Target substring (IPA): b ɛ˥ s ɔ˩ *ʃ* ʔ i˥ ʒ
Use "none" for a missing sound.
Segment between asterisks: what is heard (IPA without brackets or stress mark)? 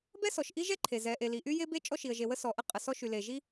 ʃ